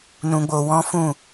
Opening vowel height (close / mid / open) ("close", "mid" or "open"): close